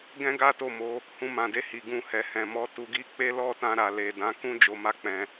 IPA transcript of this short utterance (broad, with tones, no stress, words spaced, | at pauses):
ɡɛ̃˦ɡa˦to˦˨mo˨˦ | hũ˧mã˨de˧ hi˨ɡũ˧hɛ˨ hɛ̃˨mɔ˨˦ tu˧ɡi˦k͡pe˦ lɔ˦˨tã˧ ɾa˨le˨dã˨˦ kũ˦ d͡ʒo˧ma˦k͡pɛ̃˧